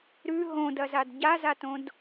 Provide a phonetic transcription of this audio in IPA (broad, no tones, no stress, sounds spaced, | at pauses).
ɾ ʉ ɦ õ d ɐ z a d ɟ a z a t õ d